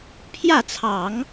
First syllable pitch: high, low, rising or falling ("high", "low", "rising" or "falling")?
falling